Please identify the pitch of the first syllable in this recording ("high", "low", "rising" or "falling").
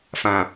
low